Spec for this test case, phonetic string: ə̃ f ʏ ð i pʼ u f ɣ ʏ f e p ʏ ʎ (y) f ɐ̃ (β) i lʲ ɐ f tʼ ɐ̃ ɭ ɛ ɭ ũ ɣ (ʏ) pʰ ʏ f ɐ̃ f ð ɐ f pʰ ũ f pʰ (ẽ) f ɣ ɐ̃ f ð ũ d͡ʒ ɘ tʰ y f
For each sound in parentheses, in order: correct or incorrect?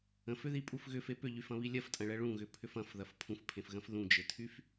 correct, correct, correct, correct

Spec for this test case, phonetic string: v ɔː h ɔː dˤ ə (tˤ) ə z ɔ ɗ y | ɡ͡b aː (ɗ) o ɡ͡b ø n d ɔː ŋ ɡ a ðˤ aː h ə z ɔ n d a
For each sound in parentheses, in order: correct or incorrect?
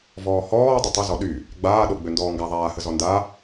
correct, correct

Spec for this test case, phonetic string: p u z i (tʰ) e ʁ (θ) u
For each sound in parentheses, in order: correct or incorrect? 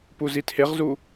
correct, incorrect

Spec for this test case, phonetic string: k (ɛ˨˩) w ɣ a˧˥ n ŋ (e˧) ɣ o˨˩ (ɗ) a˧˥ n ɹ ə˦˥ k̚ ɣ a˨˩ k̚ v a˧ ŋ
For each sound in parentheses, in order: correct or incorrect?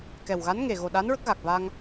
correct, incorrect, correct

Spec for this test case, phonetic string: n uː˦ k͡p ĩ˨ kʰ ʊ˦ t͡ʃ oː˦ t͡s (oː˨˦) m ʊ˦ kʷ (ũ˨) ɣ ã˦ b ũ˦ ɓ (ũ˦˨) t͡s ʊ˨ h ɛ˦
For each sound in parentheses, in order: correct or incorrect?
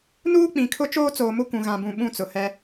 incorrect, correct, correct

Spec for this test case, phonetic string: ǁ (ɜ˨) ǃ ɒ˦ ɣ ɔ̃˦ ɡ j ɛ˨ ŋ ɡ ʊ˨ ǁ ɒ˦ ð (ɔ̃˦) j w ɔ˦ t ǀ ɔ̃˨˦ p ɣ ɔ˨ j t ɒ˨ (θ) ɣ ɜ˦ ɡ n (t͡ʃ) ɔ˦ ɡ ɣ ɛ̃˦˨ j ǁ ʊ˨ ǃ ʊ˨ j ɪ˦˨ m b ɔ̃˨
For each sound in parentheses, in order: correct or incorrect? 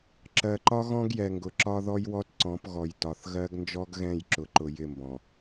correct, incorrect, correct, incorrect

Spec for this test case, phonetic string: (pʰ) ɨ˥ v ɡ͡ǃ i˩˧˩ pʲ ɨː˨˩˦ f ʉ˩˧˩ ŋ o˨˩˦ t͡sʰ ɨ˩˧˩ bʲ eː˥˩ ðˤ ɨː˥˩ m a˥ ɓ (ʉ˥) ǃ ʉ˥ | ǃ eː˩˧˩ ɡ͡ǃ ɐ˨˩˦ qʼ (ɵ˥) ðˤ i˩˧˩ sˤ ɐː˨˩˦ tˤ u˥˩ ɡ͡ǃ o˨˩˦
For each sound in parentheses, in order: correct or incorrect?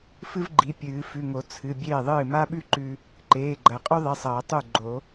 incorrect, correct, correct

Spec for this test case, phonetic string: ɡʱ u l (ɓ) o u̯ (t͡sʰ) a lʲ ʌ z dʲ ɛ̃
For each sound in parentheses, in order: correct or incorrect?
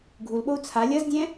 correct, correct

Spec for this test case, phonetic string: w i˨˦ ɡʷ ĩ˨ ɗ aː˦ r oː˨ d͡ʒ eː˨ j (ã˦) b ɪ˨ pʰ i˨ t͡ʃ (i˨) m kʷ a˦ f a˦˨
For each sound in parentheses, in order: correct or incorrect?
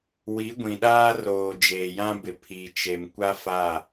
correct, incorrect

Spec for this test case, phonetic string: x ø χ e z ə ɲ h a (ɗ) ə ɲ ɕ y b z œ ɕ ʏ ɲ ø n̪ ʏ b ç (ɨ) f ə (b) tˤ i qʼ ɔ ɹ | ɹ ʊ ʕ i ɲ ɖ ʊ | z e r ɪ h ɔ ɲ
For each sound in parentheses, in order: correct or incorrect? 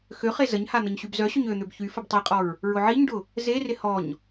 incorrect, incorrect, correct

